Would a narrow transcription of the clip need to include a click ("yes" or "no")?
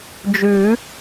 no